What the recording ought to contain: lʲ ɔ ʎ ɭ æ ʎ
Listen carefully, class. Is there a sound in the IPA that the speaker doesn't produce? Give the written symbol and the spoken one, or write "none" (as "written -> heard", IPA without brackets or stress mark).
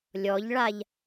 æ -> a